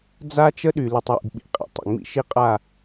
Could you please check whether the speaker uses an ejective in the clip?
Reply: yes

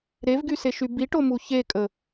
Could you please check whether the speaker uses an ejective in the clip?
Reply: yes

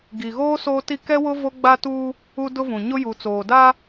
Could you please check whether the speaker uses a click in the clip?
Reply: no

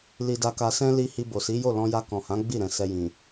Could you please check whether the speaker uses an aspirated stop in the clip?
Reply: no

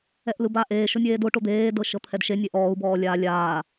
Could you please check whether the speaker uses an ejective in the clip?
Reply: no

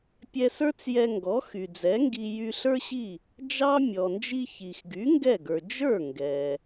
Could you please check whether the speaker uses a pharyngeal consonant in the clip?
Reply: no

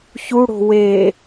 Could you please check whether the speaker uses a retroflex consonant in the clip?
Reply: yes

